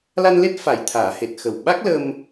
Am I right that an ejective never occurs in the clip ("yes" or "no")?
yes